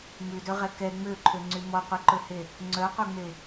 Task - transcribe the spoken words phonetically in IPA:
mʉdɵʁɛ kɛ ŋ͡møǃʰøŋ͡ǀy mɔqʷiǃɵhe | ŋ͡ǀœqʷœŋ͡me

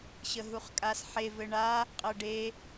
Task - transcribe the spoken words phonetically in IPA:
ɕəɦuχkʼasħe vɘɳa | qʼɤɖe

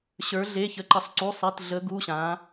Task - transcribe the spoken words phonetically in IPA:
ɕə˞˩˧ɮe˩˧˩ çə˩˧ǃə˩˧sˤǀu˩˧˩sˤi˩˧˩t ɮə˩˧ ɡu˩˧˩ɕã˩˧

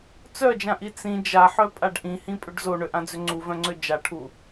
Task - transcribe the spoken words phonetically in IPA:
t͡sœd͡ʒãʔi t͡sĩ d͡ʒaħœpʼaɖ ʔĩhĩpʼʏɖ zoɳøʔãd͡zʏ ŋ͡ǀuvœ̃ŋ͡ǀø d͡ʒaʈʰu

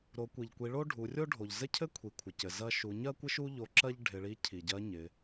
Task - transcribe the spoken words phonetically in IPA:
ɾo˩˧kʷi˩ʎkʷi˩˧ɭo˥ ɖʱu˩˧rʲo˥ɖʱo˩ʎ zɘ˥cʰɘ˥kʷʰi˩ kʷʰɪ˩cɘ˩ zɐ˧ʃu˩˧ ɲɜ˥kʷɪ˥ʃu˥ ʎo˧ǁɜ˥ʎ ɖʱɪ˩˧ɭi˧˥ cʰi˩ɟɜ˧˥ɲɪ˩˧

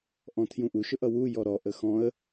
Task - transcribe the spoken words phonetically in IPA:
ʔɔ̃tʰjũʔu ʃʊʔʌwu jɔɾɔ ʔəxɔ̃ə̯

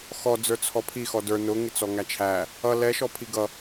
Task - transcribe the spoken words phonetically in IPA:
xɔ d͡zə˞t͡sʰɔpʰixɔ də˞ nʊŋɪt͡sɔ ŋæt͡ʃʰæ | ʌ lɛʃɔ pʰiɡʌ

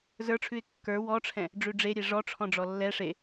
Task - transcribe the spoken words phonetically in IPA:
zə˞ʈ͡ʂʰʉɪ̯ kːə˞ wɔʈ͡ʂʰɛ̃ | ɖ͡ʐʉɖ͡ʐe ɾʲeʐɔ ʈ͡ʂʰɔ̃ɖ͡ʐɔlːɛ ʂe

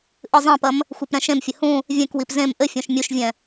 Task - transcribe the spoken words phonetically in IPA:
ʔɨzˤɛ̃pɐm | xʷepɾɛ̃ʃẽmfʲɘ hũ | vʲɛ̃kwip zẽm ʔɘfʲõʃ mʲuʃvʲɛ̃

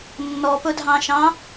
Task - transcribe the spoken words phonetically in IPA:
nːɔpɵdʱɑ̃ʃɑ̃

